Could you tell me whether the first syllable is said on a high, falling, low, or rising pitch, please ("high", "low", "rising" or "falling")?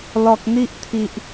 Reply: low